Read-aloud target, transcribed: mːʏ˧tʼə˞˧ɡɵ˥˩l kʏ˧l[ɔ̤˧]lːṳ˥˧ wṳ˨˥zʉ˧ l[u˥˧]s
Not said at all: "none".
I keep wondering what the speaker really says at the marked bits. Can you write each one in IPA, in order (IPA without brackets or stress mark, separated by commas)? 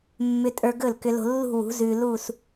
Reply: o̤˧, u˥˧